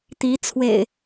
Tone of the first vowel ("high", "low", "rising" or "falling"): rising